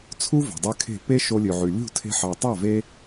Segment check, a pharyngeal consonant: present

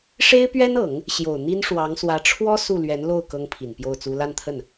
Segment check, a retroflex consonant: present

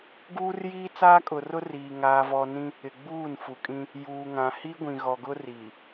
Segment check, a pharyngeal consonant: absent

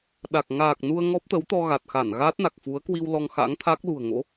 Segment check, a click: absent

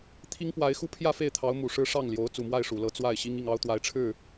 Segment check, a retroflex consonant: present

